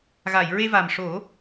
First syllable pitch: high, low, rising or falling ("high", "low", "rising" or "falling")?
low